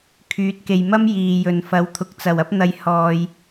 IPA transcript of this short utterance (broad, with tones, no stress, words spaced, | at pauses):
kʰyː˨˥t̚ke˨jmɐ˥m jiː˨jɵ˨n fɐ˨˥wt̪ʰʊ˨k̚t͡sɐ˨˩w ɐ˥p̚n̪ɐ˧j hɔː˧j